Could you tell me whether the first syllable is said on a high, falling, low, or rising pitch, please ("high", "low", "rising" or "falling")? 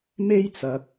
high